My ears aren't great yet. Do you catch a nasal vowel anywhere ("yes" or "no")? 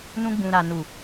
yes